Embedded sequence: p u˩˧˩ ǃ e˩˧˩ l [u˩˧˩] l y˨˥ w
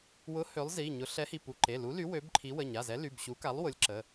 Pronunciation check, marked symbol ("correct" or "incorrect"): incorrect